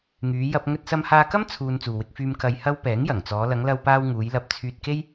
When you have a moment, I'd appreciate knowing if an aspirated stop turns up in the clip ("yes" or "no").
yes